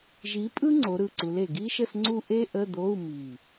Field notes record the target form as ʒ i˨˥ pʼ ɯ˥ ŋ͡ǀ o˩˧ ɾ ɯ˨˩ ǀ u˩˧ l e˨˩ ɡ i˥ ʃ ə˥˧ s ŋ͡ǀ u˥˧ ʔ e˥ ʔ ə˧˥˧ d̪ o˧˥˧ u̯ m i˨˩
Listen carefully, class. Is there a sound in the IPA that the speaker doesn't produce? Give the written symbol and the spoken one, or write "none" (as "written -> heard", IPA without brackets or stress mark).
none